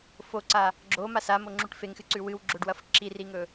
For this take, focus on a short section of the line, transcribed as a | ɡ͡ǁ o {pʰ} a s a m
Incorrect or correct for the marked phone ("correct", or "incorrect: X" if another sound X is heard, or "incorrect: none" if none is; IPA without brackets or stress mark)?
incorrect: m